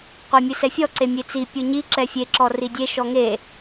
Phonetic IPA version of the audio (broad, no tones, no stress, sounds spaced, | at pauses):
qʷ ɛ mʲ ɨ s ɛ fʲ ɔ ǀ e mʲ e t͡s i pʲ u ɲ i ǁ ɛ fʲ e ǁ ɔ r i dʲ e ʃ ɔ ŋ e